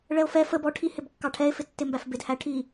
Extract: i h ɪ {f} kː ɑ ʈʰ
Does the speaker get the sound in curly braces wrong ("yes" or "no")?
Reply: yes